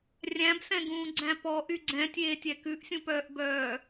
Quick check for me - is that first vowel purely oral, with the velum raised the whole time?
no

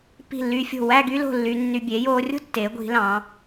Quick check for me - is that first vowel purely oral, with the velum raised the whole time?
yes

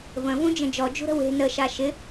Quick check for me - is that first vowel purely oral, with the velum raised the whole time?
no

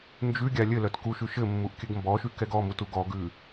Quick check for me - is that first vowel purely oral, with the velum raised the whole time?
yes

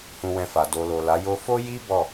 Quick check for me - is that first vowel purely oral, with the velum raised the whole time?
no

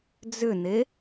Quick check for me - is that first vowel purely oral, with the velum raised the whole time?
yes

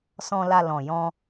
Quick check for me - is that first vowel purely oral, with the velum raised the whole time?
no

